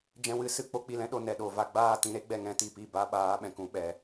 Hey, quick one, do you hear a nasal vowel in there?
yes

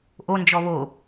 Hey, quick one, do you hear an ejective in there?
no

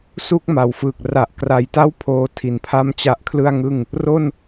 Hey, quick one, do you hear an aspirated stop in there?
yes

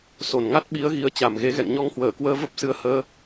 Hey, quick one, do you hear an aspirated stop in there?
no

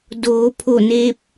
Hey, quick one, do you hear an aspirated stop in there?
yes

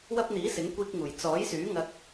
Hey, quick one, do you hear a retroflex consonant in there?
no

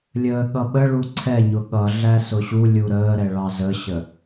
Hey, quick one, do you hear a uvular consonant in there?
no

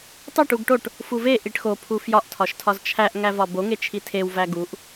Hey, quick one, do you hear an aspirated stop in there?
yes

